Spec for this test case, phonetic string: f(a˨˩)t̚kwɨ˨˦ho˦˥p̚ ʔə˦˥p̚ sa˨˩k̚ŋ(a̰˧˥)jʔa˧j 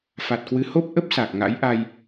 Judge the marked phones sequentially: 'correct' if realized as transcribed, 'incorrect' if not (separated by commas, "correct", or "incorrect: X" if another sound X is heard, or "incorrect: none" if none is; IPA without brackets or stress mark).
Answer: correct, correct